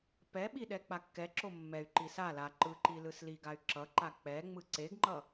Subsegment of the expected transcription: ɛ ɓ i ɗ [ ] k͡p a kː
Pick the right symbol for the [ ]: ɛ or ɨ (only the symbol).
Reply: ɛ